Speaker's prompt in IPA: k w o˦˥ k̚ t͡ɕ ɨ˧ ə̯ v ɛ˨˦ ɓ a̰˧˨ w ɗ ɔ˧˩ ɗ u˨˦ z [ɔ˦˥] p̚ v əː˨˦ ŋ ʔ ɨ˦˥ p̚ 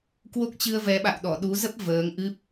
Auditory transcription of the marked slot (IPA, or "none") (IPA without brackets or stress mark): ə˦˥